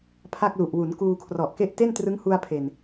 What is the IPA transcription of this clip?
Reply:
pʰ a˥˩ k̚ l u˨˩ ʔ w u˩˦ n k uː˧ kʰ r ɔ˨˩ ʔ k e˥˩ ʔ t e˥˩ n t r ɯ˦˥ ŋ h u˧ a̯ pʰ e˨˩ n

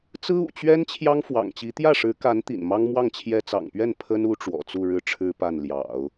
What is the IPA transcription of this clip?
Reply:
t͡s ɹ̩˥ ṵ˨˩ t͡ɕ ɥ ɛ˥ n t͡ɕʰ j ɑ˥ ŋ f w ɑ̰˨˩ ŋ t͡ɕ i˧˥ t̪ j ä˥˩ ʂ ɻ̩˧˥ k a˧˥ n t̪ ḭ˨˩ n m ɑ˥ ŋ m w ɑ˥˩ ŋ t͡ɕʰ j ɛ˥ t͡s ɑ̰˨˩ ŋ p ɥ ɛ˥˩ n pʰ ə˥ n u˧˥ ʈ͡ʂ w ɔ̰˨˩ t͡s u˥˧ ɻ ɻ̩˥˩ ʈ͡ʂʰ ɻ̩˥ p a˥˩ n l j ɑ̰˨˩˦ ʊ̯

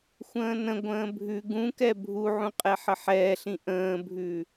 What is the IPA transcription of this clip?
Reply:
xʷ ə̃ː n ə̃ ɡʷ ə̃ː bʱ ʉ ɡ ũ k ɛ bʱ u ʕ ũ qʼ ɛ ħ ə ħ ɛː ɬ ĩ ʔ ə̃ː bʱ ʉ

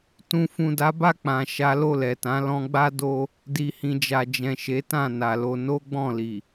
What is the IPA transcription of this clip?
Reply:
t ũ˨ f ũ˨ d a˨˦ b a˦˨ k͡p ã˨ ʃ a˨˦ l o˦˨ l ɛ˨ t ã˨˦ l ɔ̃˧ ɡ͡b a˦ d o˦ | d i˨ h ĩ˨ d͡ʒ a˨ d͡ʒ ɛ̃˨ ʃ e˨˦ t ã˦˨ n a˨ l o˧ n o˦ ɡ͡b ɔ̃˦˨ l i˨

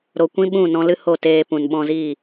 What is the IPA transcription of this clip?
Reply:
ɾ o˨ kʷ ĩ˧ ɓ ũ˦˨ n ɔ̃˧ l ɨ˦ h o˦˨ t eː˧ p ũ˨ n ɓ ɔ̃˧ z i˦˨

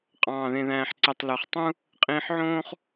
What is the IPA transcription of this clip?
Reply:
qʼ ɑ̃ː˧˩ ð ẽ˧ ð æ̃ː˧ ħ ǀ e˧ tˤ l ø˩˧ χ tˤ ũ˥ | qʼ ĩː˧ ħ ʕ õː˥ χ

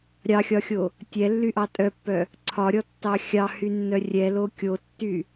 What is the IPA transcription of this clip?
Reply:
ɾʲ ɑ xʲ ɒ xʲ o | tʲ ɛ lː y ʔ ɑ tʼ œ pː œ | ǀʰ ɒ ɾʲ ɔ tː ɑ xʲ ɑ h y nː œ rʲ ɛ l o kʲ o tː y

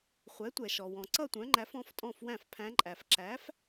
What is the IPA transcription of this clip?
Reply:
χʷ ɛ˩˥ tʷ ɛ˩ ʃ ɔ˩ w ɔ̃˩ ǀ ʌ˥˨ tʷ œ̃˩˥ ŋ͡ǃ æ˩˥ f ɔ̃˩˥ f tʼ ɔ̃˥˨ f w æ̃˥˨ f pʰ æ̃˧˥ ǃʼ æ˩ f ǁ æ˩˥ f

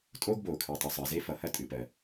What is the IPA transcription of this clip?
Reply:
tʼ oː˥ ɡ b oː˩ kʰ ɨː˩ tˤ o˩ sˤ əː˩ z e˥ f ʌ˩ h ɐ˥ tʼ ɨ˩ p ɜ˩

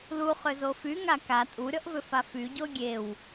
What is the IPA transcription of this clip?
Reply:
l u χ ʏ z o f y ŋ a k a tʼ u ɾʲ ɔ ʔ v ʏ f a f y ɟ o ɡʲ e w

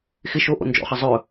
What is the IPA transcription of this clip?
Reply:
x ɪ ʃ o ʔ o̰ n d͡ʒ ɔ̰ χ ʌ zˤ ɵ

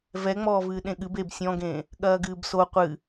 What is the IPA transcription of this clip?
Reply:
v ɛ ŋ͡m ɔː v ɨː ɗ ẽ ɠ ɨ b e b sʲ ɔ̃ ɡ ẽː | ɠ ɐː ɡ ɨː b s o qʷ ɨ

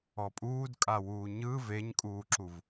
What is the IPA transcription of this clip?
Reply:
ɔ pʼ uː d kʼ a w uː ɲ ɯ v e ɲ kʼ uː ǁ u v

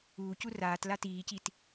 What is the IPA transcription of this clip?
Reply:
uː c u r aː t l a t iː c i t

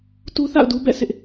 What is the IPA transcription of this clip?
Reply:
t u˦ θ a̰˦˨ ʊ̯ d u˦ b ɛ̰˦˨ sʰ ɪ˦ ʔ

